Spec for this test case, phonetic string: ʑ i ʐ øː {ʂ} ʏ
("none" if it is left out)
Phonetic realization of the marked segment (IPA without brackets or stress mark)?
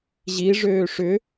ʂ